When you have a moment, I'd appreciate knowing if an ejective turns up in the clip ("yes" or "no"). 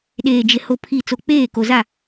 no